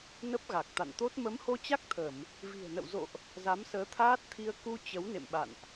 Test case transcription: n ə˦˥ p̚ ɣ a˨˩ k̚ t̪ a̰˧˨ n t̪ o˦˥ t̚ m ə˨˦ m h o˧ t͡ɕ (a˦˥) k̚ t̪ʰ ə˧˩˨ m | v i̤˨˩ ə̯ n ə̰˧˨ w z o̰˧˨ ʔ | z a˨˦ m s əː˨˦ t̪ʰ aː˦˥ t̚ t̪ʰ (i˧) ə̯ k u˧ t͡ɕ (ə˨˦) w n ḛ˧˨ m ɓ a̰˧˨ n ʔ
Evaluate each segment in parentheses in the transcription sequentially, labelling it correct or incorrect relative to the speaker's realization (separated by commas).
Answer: correct, correct, correct